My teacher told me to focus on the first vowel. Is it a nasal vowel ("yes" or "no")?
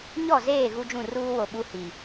no